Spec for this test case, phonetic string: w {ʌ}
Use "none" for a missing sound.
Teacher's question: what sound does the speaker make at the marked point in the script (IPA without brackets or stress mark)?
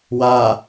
a